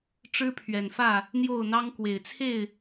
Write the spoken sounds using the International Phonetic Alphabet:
ʈ͡ʂ ɻ̩˦ pʰ ɥ ɛ˨˩ n f ä˥˨ | n̪ j o˥˨ ʊ̯ n̪ ɑ˦ ŋ k w e˨˩ ɪ̯ t͡sʰ e˥˨ ɪ̯

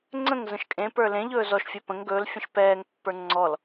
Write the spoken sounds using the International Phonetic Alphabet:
ŋ͡ǀ ə̃ ŋ z ə̃ ʃ kʼ ẽ p ə˞ l ẽ ʎ ɵː z ɔ ʃ fʲ ɛ p ə̃ ŋ ɡ ɵː l fʲ ə̃ ʃ p ɛː ŋ pː ə˞ ŋ͡ǀ ɔ l

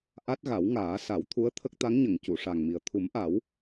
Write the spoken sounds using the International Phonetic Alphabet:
ʔ a˦˥ t̚ ɣ a˨˩˦ w ŋ aː˨˩˦ s a˨˩˦ w t̪ʰ u˧˥ ə̯ t̪ʰ ə˦˥ k̚ t̪ a˧˥ ŋ ɲ ə˨˩˨ ŋ c u˨˩˨ ʂ a˨˩ ŋ m i˨˩ ə̯ t̪ʰ u˨˩˦ m ʔ a˨˩˦ w

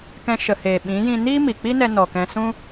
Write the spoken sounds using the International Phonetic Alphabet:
k ɛ̃˧ ʃ ə˨ h eː˨ ɓ ĩ˨˦ j ĩ˧ n iː˦ m i˨ k͡p i˦ n ɛ˧ n ɔ˨ k ɛ̃˧ s ũ˦

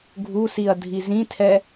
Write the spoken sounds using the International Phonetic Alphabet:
ɡʱ u s i ɐ̯ dʱ i z ĩ tʰ ɛ

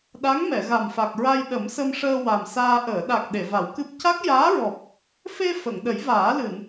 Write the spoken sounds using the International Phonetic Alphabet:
ɗ a˧˥ ŋ m ɛ˨˩˨ ɣ a˨˩ m f a˨˩ k̚ ɹ a˧ j ɗ ə˨˩˦ m s ə˧ m ʂ əː˧ w a˨˩ m s aː˧ ʔ əː˨˩˨ ɗ a˨˩ k̚ ɗ e˨˩˨ v a˨˩˦ w k ɨ˦˥ p̚ c a˦˥ k̚ j aː˧˥ ɹ ɔ˨˩ p̚ | f e˧ f ə˨˩˨ ŋ ɗ ə˨˩˦ j v aː˨˩˦ l ɨ˨˩˨ n

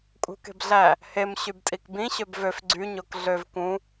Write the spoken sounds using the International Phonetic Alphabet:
kʼ ṳ k e̤ b ɮ æ | h e m ɕ y b tʼ i k b ĩ ɕ ø b v ø f ɡ͡ǀ y ɲ o k ɮ ø v k ũ

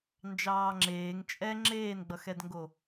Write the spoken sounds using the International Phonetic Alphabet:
n d͡ʒ ɑː ŋ͡ǁ eː ŋ t͡ʃʼ ɛ ŋ͡ǁ eː n ɡ͡b ʌ x ɛ d ŋ ɡ o

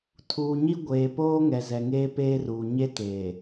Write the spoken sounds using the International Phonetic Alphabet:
tʰ uː˨ ɲ i˦ ɡʷ eː˨ p oː˦ ŋ ɛ˨ z ɛ˨ ŋ eː˦ p eː˦ r uː˨ ɲ e˦ t eː˨

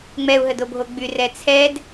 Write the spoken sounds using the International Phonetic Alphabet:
ŋ͡m ɛ u̯ ɦ ə d o bʱ o ɡ͡b y r ɛ t͡sʰ ɛ d

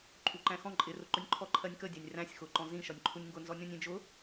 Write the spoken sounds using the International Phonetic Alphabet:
ǃʼ u ǃ æ̃ x ɔ̃ ǃʼ ɪ r ʊ ǃ ʊ nʲ ǃʰ ɔ ǃʰ ɜ nʲ k ə dʲ æ nʲ r æ̃ sʲ x ʊ ǃ ɔ̃ z ĩ ʃ ɒ nʲ ǃʰ u nʲ ŋ ɡ ʊ n z ɔ nʲ ɔ̃ nʲ ĩ d͡ʒ ʊ

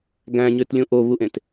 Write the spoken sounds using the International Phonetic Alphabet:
ɡ æ̃ ɲ ø t lʲ ũ ʔ o β u ʔ ẽ t

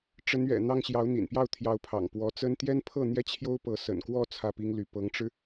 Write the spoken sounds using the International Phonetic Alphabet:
ʈ͡ʂ ə˧˥ n ɥ ɛ̰˨˩ n̪ ɑ˥˩ ŋ ɕ j ɑ˧˥ ʊ̯ n̪ ḭ˨˩ n p j ɑ˥˩ ʊ̯ t̪ʰ j ɑ˧˥ ʊ̯ pʰ ɑ̰˨˩ ŋ p w ɔ˧˥ t͡s ə˥ n t̪ j ɛ˥ n pʰ ɤ˥˩ n̪ j ɛ˥ t͡ɕʰ j o˥ ʊ̯ p ɤ˧˥ s ə̰˨˩ n k w ɔ˥˧ t͡sʰ ä˥˩ p i˥ ŋ l y˧˥ p ɤ˧˥ ŋ ʈ͡ʂ ɻ̩˧

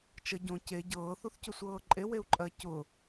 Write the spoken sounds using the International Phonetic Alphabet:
t͡ʃ ə ɟ õ c e ɟ ɤː θ u θ c ʊ sʷ ɤː ǃʼ e w e u̯ ǃʼ ɜ c ʊ

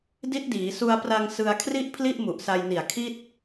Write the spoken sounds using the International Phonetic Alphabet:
d i˦˥ t̚ d iː˩˦ s u˧ a̯ p r a˧ ŋ s ɯ˧ a̯ kʰ r i˥˩ ʔ pʰ l i˥˩ ʔ m u˨˩ ʔ s a˧ j n i˨˩ a̯ kʰ i˥˩ t̚

